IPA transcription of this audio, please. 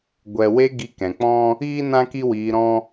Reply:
ɡʷ ɛ˨ w e˧ ɡ i˧ k ɛ̃˨ k͡p ɔ̃˦ | iː˦ n ã˦ k i˦ w iː˧ ɾ ɔ̃˦

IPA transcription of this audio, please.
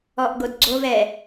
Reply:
ɔ ʔ ɡ o d ɡ͡ǀ o v ɛ

